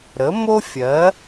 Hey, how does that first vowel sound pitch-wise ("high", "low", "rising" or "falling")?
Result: rising